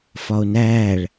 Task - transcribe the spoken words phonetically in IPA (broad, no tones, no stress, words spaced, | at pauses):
fɒo̯næːɭ